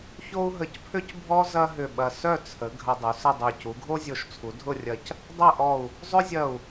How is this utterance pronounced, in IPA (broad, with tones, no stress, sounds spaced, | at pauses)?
ç o˥ u̯ ɦ ə˧ c pʰ ʏ˥ c bʱ ɔ˥ z ɐ˥ ɦ ʏ˧˩ ɓ ɐ˧˩ s œ˥˧ t͡sʰ ə˩˧ ɡʱ ɐ˧ dˤ u˩˧ s ə˥˧ dˤ œ˧˩ c u˩˧ ɡʱ o˥ zʲ o˧˩ ʃ t͡sʰ u˩˧ dʱ ʊ˥˧ rʲ ɐ˧˩ c | dˤ ɐ˥˧ ʔ ɔ˧˩ u̯ | zˤ ʏ˥ zʲ ɐ˧˩ u̯